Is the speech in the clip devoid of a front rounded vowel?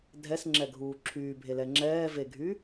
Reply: no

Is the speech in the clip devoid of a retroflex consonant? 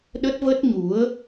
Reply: yes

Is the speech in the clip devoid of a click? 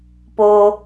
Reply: yes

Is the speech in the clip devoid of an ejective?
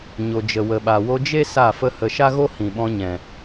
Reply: yes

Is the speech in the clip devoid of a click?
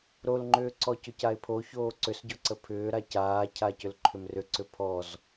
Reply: no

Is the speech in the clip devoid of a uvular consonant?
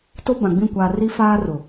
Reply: yes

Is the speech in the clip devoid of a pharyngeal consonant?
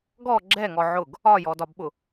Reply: no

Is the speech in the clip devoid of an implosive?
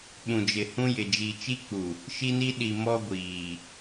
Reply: no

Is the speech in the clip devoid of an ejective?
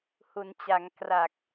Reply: yes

